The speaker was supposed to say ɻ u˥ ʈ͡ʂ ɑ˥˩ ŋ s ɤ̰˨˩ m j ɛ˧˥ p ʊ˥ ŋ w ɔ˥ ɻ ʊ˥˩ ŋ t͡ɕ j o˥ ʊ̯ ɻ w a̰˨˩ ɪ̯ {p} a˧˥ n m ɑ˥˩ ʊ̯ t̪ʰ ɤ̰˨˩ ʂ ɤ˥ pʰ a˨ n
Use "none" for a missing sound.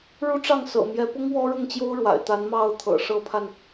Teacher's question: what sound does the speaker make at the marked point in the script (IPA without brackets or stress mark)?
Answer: t̪